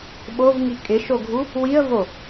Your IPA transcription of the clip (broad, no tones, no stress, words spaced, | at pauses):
ɓovŋi kʼɪʃoɡʱu | wiə̯vo